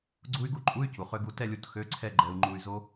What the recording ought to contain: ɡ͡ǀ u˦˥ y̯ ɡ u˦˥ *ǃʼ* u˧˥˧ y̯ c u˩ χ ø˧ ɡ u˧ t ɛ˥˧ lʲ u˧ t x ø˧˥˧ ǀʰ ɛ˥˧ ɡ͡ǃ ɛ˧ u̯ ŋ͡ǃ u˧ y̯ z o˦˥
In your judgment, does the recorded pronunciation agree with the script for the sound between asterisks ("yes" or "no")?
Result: yes